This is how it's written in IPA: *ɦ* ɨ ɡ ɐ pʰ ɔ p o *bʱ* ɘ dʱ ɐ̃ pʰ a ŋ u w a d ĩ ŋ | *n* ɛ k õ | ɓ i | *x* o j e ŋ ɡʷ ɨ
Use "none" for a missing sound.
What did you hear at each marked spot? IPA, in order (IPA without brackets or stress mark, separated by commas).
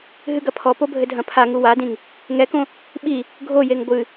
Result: ɦ, bʱ, ŋ, ɡʱ